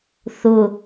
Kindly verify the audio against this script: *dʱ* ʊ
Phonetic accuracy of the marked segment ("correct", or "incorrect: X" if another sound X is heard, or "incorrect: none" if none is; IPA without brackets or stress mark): incorrect: θ